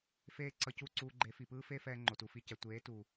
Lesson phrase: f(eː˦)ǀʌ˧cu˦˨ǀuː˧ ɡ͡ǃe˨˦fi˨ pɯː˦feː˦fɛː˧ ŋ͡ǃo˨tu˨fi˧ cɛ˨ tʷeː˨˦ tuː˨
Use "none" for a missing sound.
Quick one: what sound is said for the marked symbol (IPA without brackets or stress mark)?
eː˦